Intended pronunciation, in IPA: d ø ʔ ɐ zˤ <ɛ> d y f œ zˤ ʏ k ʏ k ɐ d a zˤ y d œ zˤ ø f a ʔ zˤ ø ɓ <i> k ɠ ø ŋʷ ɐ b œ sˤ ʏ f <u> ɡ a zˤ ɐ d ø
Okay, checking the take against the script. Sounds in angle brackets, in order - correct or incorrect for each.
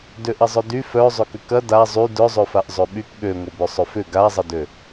incorrect, incorrect, incorrect

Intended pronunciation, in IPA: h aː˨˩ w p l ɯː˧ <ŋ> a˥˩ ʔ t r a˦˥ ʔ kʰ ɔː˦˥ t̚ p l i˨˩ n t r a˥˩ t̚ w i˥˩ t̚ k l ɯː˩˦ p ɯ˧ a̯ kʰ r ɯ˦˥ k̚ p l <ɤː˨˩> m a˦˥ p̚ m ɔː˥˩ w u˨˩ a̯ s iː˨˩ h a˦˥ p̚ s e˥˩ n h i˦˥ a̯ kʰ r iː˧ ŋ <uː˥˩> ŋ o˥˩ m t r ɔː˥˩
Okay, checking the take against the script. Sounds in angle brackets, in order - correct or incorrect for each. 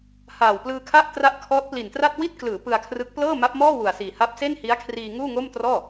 incorrect, incorrect, correct

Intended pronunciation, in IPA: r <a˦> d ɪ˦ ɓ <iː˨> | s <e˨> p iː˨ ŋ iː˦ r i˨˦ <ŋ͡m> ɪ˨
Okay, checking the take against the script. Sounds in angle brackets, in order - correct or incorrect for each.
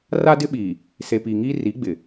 correct, correct, correct, incorrect

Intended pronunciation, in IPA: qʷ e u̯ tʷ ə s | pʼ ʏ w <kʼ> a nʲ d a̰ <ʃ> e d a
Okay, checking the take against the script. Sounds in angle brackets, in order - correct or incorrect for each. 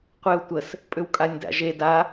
correct, incorrect

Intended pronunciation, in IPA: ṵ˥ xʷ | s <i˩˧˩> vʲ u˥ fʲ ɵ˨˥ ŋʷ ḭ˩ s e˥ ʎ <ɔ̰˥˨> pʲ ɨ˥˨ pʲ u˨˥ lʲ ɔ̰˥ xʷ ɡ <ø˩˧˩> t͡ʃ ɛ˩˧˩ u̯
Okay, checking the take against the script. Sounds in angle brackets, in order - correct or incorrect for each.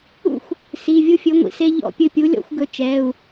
correct, correct, incorrect

